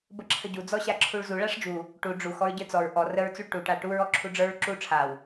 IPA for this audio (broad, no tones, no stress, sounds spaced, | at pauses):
b ə ǁʰ ə ɟ u d͡z ɔ ɕ a ǁʰ u ɭ z u ɭ a ʂ d͡ʒ u | ʈ u ɖ͡ʐ u x ɔ ɹ ɟ ə˞ t͡s ɔ ɹ ʔ ɔ r ə ɹ t͡s u ɭ ʈ u ʈ a ʈ u ɹ ɔ ǁʰ u ɖ͡ʐ ə˞ ɹ ǁ u ʈ͡ʂʰ a w